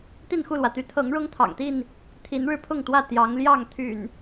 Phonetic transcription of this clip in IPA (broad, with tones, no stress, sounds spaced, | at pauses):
t̪ i˥˨ n x u˥˨ l w ä˩ t̪ y˨˦ t̪ʰ ɤ˨˦ ŋ ɻ ʊ˦ ŋ t̪ʰ ɑ̰˨˩ ŋ t̪ i˥˨ n | t̪ʰ i˨˦ n ɻ ɻ̩˧ pʰ ʊ˥˨ ŋ t̪ w ä˥˨ t̪ j ɑ˨˦ ŋ l j ɑ˥˨ ŋ t̪ʰ y̰˨˩ n